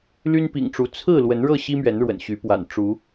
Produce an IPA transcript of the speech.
l y˦ n p ḭ˨˩ ŋ ʈ͡ʂ u˨˦ t͡sʰ ɹ̩˥˨ l w ə˨˦ n ɻ ɤ˥˨ ɕ i˦ m ɥ ɛ˨˦ n ɻ w ə̰˨˩ n ɕ y˨˦ p w a̰˨˩ n ʈ͡ʂ u˨˦

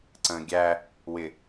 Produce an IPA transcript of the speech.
ǀ ə̃ː ɡʲ æ | w ɪ

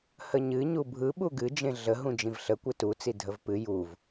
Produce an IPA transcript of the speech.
h ə ɲ ɨ ɲ u bʱ ɯ ɓ u ɡ ɨ d͡ʒ ẽ ɮ ə ɦ ũ d͡ʒ ĩ v ɬ ə kʷ ɨ t u t͡s i dʱ ə v p ɨ j u v

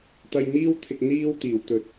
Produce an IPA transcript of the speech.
t̪ ɐ˧ j n̪ iː˥ w t̪ʰ ɪ˧ k̚ n̪ iː˥ w t̪ iː˨˩ w t̪ ɵ˨˥ t̚

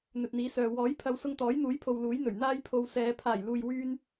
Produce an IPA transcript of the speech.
n̪ ɵ˨ t̚ n̪ iː˨˥ s œː˨ w ɔː˨˥ j pʰ ɐ˨˧ w s ʊ˧ ŋ t̪ ɔː˨˥ j n̪ uː˨˥ j pʰ o˨ w l uː˨˥ j n̪ ɵ˨˩ ɥ n̪ aː˥ j pʰ o˧ w s ɛː˨˧ pʰ aː˨˩ j l uː˨ j w yː˥ n

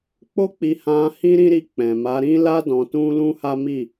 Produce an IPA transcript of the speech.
k͡p o˦ k͡p i˧ h ã˧ h ĩ˦ ɾ ĩ˦ ɾ i˧ k͡p ɛ̃˨ m a˨˦ ɾ ĩ˦ l a˦ d ɔ̃˧ t ũ˦ l ũ˦ h a˦ m i˦˨

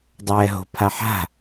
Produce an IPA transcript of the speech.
dˤ ɛː ɦ o̤ pʰ a ħ a̤

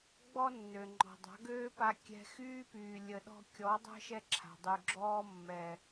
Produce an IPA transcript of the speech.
ɡ͡b ɔ˦ nː ø˨ ŋ͡ǃ ɔ̤˨ dˤ a̤˨˦ ɡ øː˦ p a˧ kʲ ɛ̤˧ x yː˦ p yː˨ lʲ ə˨ ɗ ɔ̤˧ kʲ ɔ˨˦ dˤ ə̤˦ ʃ ɛ˦ ǁʰ a̤˨ dˤ y˨ ɡ͡ǁ ɔː˦ mː ɛ˨

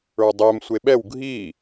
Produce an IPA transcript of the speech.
ə˞ dˤ ɛ m sʷ e ɓ ɛ w ɡʱ i

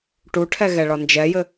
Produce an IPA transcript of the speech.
ʈ u ʈʰ ɛ ɣ ɛ ɭ ɒ n d͡ʒ ɛ j ɘ

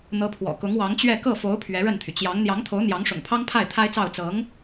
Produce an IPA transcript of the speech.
n̪ ɤ˧˥ pʰ w ɔ̰˨˩ k ʊ˧˥ ŋ w ɑ˧˥ ŋ t͡ɕ ɥ ɛ˥˧ k ɤ˥˩ f o˧˥ ʊ̯ pʰ ɥ ɛ˧˥ ɻ ə˥˩ n t̪ʰ y˩ t͡ɕ j ɑ˧˥ ŋ n̪ j ɑ˧˥ ŋ t̪ʰ o˧˥ ʊ̯ n̪ j ɑ˧˥ ŋ ʂ ʊ̰˨˩ ŋ pʰ ɑ˥ ŋ pʰ a˥˩ ɪ̯ t̪ʰ a˥ ɪ̯ t͡s ɑ˥˩ ʊ̯ t͡s ɤ˧˥ ŋ

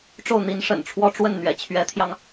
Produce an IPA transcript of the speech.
ʈ͡ʂ o˥˩ ʊ̯ n̪ i˧˥ n ʂ ə̰˨˩ n ʈ͡ʂʰ w ɔ˥ ʈ͡ʂ w ə˥˩ n n̪ ɥ ɛ̰˨˩ t͡ɕʰ ɥ ɛ˧˥ t̪ʰ j ɑ˧ ŋ

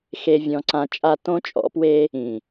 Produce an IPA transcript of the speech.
x e˧ vʲ ɔ̃˧ ǀ ã˧ t͡ʃʼ a˧ t õ˦ t͡ʃʼ ɔ̰˨˦ p w e˦ | ĩ˨

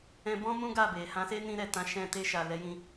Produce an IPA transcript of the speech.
ɛ̃˧ b ɔ̃˦ m ũ˦ ɡ a˦˨ b e˨ h ã˨˦ s e˦ n ĩ˧ ɾ ɛ˨ t ã˨˦ ʃ ɛ̃˧ t e˧ ʃ a˨ l ɛ˨˦ j ĩ˧

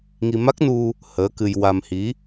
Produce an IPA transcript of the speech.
ŋ i˧ m a˦˥ k̚ n u˧ | h əː˧˥ k ɨ˧ j w a˧ m h i˧˥

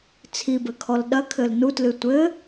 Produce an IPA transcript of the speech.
t͡sʰ i b ɘ kʰ ɔ l ɗ ɐ kʰ ɘ l n u t l ɨ tʷ ɘ

